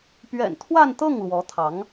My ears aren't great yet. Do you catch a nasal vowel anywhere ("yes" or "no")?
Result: no